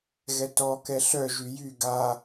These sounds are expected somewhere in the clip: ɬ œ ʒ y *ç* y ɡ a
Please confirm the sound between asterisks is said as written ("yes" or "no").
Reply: no